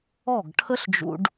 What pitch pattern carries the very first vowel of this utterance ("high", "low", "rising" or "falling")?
falling